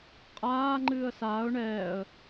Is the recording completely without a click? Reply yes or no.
no